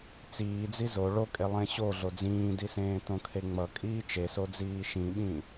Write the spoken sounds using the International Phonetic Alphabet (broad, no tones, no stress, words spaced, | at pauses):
t͡siːd͡zi zo ɭokʼe lˠẽɕo ɮod͡zĩːdisẽː tõkʰeŋ͡mʌ kʼiːt͡ʃesod͡ziː ʃĩɓĩ